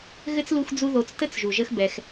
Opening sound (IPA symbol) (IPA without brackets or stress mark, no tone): ɣ